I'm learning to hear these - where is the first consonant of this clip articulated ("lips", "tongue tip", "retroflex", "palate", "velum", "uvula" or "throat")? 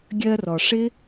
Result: velum